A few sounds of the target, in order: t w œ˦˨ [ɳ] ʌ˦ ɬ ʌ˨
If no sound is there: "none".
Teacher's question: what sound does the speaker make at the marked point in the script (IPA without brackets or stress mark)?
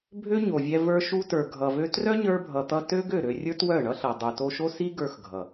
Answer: ɳ